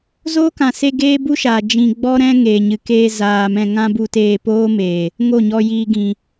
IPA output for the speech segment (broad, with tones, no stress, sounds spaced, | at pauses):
z oː˦ k ã˨ s e˧ ɡ eː˦ b u˦ ʃ aː˨ d͡ʒ ĩ˧ ɡ͡b ɔ˦ ɾ ɛ̃˦ ŋ eː˨ ɲ ɨ˨ k eː˧ z aː˨ m ɛ̃˧ ŋ ã˦ b u˧ t eː˧ p oː˦ m eː˨ | ŋ o˦˨ ɲ ɔ˧ j iː˧ ɡ ĩ˨